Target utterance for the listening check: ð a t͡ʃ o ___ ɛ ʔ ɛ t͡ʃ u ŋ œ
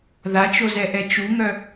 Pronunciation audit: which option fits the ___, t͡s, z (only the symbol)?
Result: z